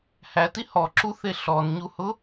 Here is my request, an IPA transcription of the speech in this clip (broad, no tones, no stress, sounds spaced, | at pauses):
h æ t i h ɔ ǁ u θ e ɬ ɔ n ɲ u h ʊ